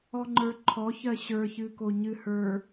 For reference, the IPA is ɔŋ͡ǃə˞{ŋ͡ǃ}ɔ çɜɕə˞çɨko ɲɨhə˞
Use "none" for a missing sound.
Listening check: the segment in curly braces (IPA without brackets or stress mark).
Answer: ǃʰ